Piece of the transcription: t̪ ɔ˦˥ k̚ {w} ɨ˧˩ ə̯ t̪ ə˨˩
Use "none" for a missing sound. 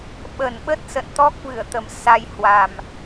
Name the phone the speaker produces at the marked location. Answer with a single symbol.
v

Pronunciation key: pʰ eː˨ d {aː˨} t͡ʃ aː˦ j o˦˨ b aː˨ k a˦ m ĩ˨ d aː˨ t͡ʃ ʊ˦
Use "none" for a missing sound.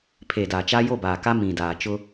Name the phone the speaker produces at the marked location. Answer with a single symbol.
aː˨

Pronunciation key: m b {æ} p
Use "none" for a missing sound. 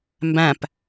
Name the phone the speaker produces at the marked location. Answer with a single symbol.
æ̃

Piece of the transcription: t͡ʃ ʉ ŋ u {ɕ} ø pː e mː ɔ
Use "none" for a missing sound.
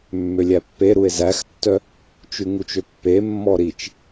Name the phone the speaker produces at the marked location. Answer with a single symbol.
t͡ʃ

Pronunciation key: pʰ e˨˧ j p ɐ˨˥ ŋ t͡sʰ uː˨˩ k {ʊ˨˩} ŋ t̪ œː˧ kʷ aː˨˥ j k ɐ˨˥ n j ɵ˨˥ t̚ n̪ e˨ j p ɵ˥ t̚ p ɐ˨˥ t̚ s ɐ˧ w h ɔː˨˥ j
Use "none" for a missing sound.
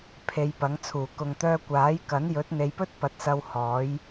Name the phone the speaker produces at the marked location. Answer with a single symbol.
ʊ˨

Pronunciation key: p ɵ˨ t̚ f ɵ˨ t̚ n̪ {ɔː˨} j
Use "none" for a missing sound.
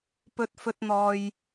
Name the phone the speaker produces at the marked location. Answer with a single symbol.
ɔː˨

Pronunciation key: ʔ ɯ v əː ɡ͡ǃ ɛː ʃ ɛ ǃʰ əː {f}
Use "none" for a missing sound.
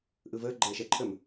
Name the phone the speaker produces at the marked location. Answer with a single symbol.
m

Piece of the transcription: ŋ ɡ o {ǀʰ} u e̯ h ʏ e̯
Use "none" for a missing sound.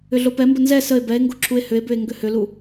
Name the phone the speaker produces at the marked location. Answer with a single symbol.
ǁʰ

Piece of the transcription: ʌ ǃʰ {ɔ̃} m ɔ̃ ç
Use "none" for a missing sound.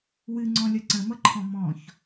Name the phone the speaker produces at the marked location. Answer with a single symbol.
ɔ̃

